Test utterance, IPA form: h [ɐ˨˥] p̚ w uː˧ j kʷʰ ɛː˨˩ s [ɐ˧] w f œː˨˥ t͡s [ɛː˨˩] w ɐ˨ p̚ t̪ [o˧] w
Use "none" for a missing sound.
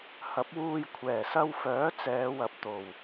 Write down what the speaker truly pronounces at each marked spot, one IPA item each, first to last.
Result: ɐ˨˥, ɐ˧, ɛː˨˧, o˨˩

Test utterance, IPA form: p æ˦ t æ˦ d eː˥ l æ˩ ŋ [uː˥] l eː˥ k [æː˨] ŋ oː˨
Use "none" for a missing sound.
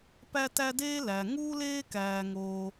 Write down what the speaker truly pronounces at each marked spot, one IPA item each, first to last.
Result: uː˥, æː˨

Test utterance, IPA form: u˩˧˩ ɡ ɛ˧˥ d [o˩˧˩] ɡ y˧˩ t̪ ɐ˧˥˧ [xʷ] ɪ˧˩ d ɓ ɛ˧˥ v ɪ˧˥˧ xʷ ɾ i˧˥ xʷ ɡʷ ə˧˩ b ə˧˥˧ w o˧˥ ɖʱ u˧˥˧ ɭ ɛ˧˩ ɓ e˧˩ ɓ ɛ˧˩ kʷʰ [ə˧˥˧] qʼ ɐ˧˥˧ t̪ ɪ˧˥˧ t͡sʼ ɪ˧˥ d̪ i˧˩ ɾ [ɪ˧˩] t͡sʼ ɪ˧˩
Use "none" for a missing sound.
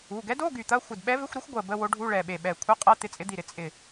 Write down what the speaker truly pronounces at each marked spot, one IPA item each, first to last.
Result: o˧˥˧, xʷ, ə˧˥˧, ɪ˩˧˩

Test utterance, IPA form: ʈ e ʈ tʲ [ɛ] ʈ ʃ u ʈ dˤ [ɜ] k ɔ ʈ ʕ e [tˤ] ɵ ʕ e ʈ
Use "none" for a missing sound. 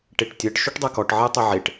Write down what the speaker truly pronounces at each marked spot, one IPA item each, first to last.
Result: ɜ, ɜ, tˤ

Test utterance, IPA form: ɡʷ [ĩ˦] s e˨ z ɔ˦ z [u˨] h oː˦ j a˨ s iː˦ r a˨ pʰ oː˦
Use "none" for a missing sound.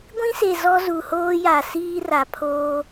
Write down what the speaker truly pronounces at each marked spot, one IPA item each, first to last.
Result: ĩ˦, u˨

